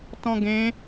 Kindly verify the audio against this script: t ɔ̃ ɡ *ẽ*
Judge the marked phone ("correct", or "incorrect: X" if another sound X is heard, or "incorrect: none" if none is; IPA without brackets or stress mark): correct